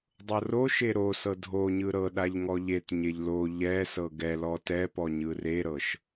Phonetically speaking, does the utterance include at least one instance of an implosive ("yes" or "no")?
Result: yes